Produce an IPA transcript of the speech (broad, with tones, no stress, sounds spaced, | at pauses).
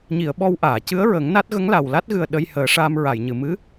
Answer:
ɲ i˨˩˨ ə̯ ɓ ɔ˧ w ʔ aː˨˩˨ c ɨ˧˥ ə̯ ɹ əː˨˩˦ ŋ n a˦˥ t̚ ɣ ə˧˥ ŋ l a˨˩ w l a˦˥ t̚ ɣ ɨ˨˩ ə̯ ɗ ə˧ j h əː˨˩˦ ʂ aː˧ m ɹ a˨˩˨ j ɲ ɨ˨˩˨ m ɨ˧˥